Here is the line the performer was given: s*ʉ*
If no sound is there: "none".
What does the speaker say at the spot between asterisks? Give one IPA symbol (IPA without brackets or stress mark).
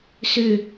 ʉ